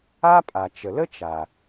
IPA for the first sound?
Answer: a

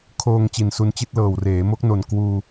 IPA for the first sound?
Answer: kʰ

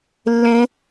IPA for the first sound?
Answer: lː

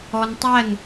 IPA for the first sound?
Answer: ɔ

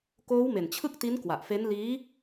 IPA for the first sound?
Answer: k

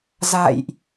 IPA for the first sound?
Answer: z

